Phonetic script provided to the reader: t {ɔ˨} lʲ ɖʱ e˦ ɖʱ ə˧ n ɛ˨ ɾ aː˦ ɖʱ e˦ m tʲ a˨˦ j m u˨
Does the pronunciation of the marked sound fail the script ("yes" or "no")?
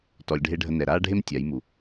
no